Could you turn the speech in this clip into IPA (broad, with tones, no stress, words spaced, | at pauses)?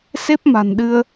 se˦˥p̚ma̤˨˩nɗɨ˧ə̯